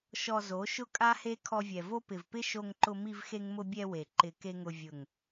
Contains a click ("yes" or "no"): yes